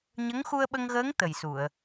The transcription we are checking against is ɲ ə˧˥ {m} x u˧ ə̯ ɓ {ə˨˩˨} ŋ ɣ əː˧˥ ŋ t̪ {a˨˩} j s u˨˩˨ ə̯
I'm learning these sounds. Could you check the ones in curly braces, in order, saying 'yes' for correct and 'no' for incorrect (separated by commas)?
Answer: no, no, no